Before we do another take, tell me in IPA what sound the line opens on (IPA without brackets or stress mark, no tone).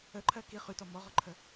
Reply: ə